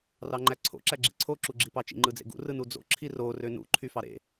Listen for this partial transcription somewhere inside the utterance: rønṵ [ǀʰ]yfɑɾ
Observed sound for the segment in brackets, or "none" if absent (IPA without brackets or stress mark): ǃʰ